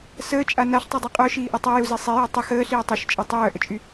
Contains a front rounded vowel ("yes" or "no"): yes